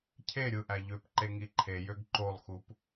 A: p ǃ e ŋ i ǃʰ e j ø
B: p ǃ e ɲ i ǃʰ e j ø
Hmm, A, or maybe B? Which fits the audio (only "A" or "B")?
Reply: A